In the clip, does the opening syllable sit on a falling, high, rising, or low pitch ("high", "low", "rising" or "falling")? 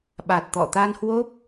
low